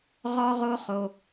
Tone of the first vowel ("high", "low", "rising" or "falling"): high